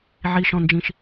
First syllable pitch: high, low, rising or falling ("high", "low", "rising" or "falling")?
low